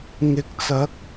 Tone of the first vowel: rising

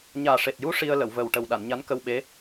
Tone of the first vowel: low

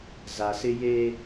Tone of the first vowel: low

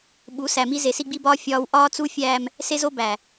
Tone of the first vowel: rising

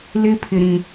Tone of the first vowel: high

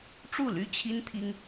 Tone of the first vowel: falling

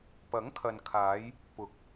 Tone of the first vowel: rising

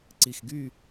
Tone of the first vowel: falling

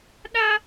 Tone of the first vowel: high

